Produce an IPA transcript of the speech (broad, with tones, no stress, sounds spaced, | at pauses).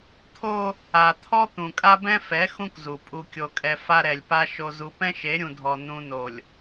t̪ʰ o˦ | a˨ t̪ʰ ɔ˦ t̪ ũ˨ kʼ a˦ b ɛ̃˦ f ɛ˨˦ x ũ˦ k z u˨ pʼ u˨ kʲ o˨ kʼ ɛ˨ f a˦ ɾ ɛ˨ lʲ p a˦ ʃ o˨ z u˨ p ɛ̃˦ ʃ e˨˦ ɾʲ ũ˨ dʱ ɔ˨ n ũ˨ n o˨ lʲ